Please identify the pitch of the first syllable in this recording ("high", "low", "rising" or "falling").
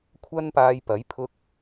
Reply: high